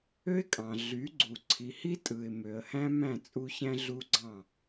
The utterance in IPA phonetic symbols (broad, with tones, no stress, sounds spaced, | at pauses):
ø˦ ɪ̯ kʼ ɑ̃˨ ɮ y˨˦ ɡ͡ǀ u˨ ǀʰ i˨ h i˦ tʼ ɯ˨ ɪ̯ m ø˨ ə̯ h æ̃˦ m æ̃˦˨ t͡sʼ u˦ ç æ̃˦ ɮ u˦ ɡ͡ǀ ɑ̃˦˨